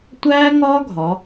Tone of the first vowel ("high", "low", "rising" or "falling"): high